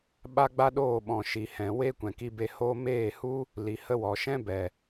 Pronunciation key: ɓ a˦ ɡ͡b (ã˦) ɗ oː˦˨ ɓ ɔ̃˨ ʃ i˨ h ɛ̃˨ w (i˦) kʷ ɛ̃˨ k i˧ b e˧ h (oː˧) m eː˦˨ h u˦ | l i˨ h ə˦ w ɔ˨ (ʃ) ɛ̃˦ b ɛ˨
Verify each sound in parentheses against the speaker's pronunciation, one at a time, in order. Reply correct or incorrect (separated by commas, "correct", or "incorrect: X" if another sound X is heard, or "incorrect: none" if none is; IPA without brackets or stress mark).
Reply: incorrect: a˦, incorrect: e˦, incorrect: oː˦, correct